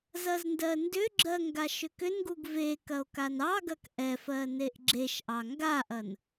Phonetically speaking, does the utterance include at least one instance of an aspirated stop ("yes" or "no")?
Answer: no